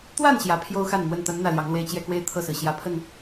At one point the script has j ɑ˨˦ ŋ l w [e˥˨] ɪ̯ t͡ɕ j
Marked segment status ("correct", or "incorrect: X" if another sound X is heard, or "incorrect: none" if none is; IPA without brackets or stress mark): correct